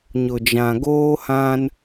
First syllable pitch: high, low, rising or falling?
low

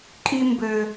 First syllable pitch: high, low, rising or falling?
high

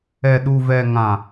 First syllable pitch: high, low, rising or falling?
low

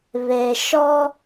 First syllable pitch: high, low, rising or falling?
low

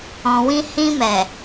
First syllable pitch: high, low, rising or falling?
low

